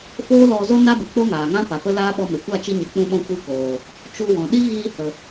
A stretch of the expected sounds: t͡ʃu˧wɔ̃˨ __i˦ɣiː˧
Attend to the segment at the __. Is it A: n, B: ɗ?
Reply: B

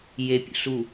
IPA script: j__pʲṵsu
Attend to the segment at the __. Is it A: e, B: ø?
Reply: A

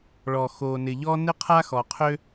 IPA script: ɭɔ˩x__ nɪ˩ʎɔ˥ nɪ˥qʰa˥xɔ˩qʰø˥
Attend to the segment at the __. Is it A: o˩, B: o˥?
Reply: A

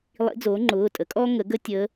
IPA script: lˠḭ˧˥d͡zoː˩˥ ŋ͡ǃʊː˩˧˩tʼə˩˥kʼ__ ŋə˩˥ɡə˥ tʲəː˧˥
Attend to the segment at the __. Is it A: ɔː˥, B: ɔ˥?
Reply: A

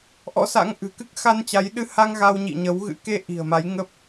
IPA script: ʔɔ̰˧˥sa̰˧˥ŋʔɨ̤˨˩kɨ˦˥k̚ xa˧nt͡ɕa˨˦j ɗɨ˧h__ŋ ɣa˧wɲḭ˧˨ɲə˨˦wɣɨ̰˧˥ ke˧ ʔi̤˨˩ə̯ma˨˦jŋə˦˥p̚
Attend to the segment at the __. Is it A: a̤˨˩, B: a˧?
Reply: B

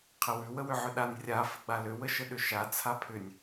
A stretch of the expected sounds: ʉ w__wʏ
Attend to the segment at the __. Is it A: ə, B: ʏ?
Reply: A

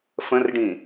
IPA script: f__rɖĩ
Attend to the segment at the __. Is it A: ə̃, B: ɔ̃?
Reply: A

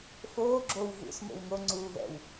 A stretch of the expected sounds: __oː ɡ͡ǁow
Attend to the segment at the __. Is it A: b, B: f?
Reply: B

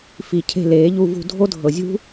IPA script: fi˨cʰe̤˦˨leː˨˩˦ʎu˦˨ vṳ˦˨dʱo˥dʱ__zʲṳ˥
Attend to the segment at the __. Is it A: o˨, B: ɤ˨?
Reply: B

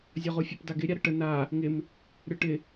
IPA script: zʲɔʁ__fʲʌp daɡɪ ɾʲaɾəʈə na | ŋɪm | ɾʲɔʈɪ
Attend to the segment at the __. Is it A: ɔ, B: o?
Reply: B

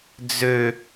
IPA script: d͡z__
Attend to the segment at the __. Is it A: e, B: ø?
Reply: B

